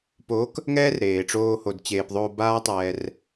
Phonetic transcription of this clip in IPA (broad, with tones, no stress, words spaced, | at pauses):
po˨˦k | ŋɛː˦rɾeː˨ʈ͡ʂoː˧ ho˨dt͡ɕeː˨p ðˤoː˧baː˦tˤɛː˧r